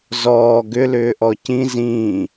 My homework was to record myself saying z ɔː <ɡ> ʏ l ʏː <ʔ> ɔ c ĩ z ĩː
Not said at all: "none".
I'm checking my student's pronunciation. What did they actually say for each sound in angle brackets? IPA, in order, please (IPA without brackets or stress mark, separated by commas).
ɡ, ʔ